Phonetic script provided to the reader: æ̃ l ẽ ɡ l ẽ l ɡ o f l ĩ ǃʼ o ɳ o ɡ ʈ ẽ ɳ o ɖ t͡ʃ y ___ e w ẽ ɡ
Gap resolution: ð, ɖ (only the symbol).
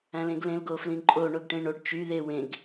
ð